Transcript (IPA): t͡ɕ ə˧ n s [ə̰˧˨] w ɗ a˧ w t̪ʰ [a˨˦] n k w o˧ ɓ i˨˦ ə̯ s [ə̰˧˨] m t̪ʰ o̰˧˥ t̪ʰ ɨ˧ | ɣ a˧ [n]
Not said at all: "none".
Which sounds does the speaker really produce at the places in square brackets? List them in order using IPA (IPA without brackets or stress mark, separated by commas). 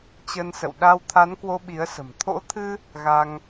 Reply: ə̰˧˨, a˨˦, ə̤˨˩, ŋ